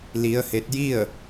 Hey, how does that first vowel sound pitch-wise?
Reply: rising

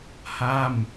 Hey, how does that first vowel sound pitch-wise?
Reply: falling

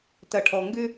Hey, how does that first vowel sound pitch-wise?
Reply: low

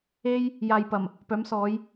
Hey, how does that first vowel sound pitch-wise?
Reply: high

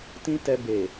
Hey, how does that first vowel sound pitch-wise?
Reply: high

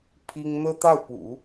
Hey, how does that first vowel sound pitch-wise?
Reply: high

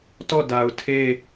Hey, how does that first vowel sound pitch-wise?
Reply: falling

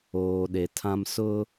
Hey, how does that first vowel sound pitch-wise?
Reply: low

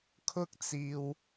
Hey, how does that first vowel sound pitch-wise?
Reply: high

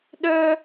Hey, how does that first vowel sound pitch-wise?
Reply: high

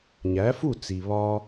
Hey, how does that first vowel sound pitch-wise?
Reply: rising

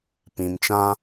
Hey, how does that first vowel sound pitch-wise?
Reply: low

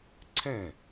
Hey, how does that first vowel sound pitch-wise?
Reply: falling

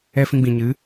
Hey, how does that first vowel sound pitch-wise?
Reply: high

